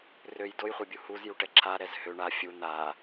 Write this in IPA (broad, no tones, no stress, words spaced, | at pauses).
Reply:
røj dojχʷɛbʲu huzjuʈɛ ǁʰaɾɛz hø ɳa fʲu n̪a